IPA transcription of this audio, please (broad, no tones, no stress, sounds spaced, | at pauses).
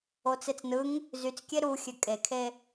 o t͡s e t͡s n ɯ ŋ | z y t͡s kʲ e ɾ u xʲ ø kʼ e kʰ e